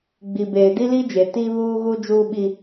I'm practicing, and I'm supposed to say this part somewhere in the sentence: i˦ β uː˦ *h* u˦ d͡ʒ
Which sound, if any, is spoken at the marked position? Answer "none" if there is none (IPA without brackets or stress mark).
ɣ